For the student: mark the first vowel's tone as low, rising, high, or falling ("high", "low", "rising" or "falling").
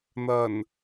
low